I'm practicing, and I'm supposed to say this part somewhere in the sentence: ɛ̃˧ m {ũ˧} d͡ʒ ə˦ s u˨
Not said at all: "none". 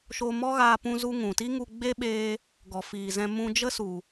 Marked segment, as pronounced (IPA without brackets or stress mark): ũ˧